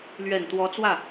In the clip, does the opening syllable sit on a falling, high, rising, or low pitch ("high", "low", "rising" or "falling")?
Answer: low